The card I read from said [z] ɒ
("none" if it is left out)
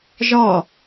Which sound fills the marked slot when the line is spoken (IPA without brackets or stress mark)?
ʒ